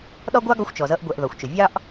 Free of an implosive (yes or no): no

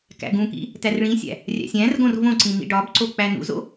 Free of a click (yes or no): no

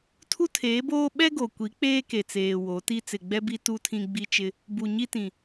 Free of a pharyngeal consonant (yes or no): yes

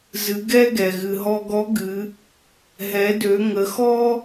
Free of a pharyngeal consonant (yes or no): yes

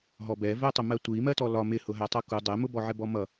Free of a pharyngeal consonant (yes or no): no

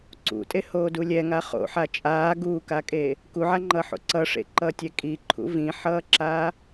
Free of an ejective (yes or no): no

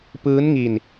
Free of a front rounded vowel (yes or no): yes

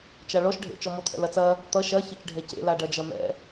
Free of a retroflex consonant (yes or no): no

